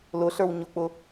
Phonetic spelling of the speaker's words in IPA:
lʊɬə˞w ɲʊk͡pʊ

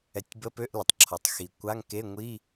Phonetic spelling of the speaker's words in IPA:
ɛ˨˩˦tʲbə˧˥˧ pø˧˥˧ʔlə˩tˤǁʰɔ˩tˤ xi˩ kʷa˧˥˧ŋke˧˥˧ŋʷi˧˥˧

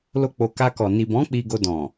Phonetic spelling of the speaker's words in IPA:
lo˦k͡po˧ ka˧kɔ˨ ni˨bɔ̃˨˦ k͡pi˧ɡo˧ dɔ̃˨

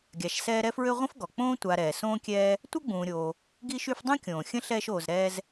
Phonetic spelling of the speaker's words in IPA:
ɡʲa˨ʃsɛː˦ɾɛ˥fɹø˥ ʁʷə̃˥fɡɔ˩ k͡põː˥ tʷa˨ɾɛː˩ sõː˦kʲɛː˦ | tʷœ˥ɡ͡bũː˨ɾʲoː˨ | ɡi˦ʃy˦fdˤũ˥ kʲõː˩xʲə̃˦ ɬɛː˦ʃoː˨zɾɛː˦z

